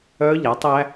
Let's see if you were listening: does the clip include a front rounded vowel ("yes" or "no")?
yes